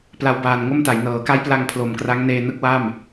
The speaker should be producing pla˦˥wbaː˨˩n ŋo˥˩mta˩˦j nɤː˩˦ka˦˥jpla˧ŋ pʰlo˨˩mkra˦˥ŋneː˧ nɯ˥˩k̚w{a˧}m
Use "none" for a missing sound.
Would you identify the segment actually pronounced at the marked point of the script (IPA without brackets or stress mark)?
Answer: a˥˩